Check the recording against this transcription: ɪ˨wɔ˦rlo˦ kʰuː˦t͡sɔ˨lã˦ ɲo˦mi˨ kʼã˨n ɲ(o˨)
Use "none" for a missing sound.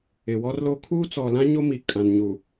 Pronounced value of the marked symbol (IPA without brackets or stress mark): u˨